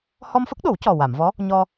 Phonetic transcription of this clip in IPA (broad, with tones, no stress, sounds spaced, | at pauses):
h ɔ˧ m f ə˦˥ k̚ ɗ o˨˩˦ w c ɔ˨˩ w a˨˩˨ m v ɔ˧˥ | ɲ ɔ˧